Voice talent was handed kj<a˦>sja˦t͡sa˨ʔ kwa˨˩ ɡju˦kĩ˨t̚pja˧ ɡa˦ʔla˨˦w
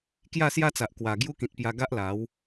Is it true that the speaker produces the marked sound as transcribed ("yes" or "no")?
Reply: no